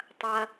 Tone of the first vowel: high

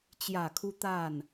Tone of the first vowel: low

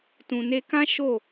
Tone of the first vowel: low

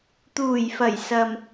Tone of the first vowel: low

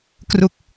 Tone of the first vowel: low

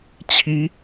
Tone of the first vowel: rising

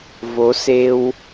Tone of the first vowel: rising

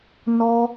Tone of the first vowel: high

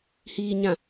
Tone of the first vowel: low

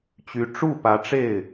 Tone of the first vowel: rising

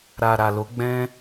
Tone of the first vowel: low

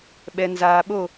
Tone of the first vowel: low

